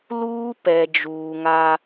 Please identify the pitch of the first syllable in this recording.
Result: high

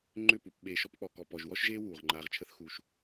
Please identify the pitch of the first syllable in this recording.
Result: falling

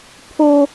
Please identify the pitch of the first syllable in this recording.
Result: high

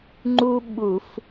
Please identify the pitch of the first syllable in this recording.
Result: high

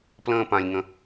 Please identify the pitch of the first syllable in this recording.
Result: high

